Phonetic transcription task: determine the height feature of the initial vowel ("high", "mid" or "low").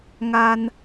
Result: low